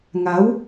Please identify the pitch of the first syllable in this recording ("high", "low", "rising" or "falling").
rising